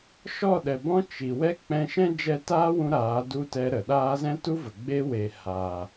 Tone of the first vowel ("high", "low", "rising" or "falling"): falling